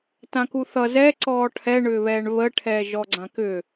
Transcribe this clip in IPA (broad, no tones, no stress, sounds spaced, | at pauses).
t ã k u θ ʌ z ɛ ǀ ɔː ʈʰ ɛ ɳ ʏ β ɛː ɳ β ə ʈʰ ɛː ʒ ɔ ɡ͡ǀ ã k ʏ